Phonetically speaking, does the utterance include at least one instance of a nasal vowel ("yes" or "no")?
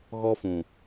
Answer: yes